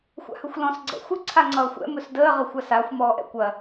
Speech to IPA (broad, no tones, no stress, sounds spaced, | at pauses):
xʷ a̰ h ɵ xʷ l ɔ̃ s ɡ͡ǀ ɛ̰ xʷ ɪ ǀʰ a ŋ͡ǀ ʌː xʷ ɛ̰ m ɵ s d əː ʁ ə xʷ a s a xʷ m ɔː ʔ ɛ̰ kʷ ɐ